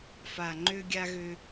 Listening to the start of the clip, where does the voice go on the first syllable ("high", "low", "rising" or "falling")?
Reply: low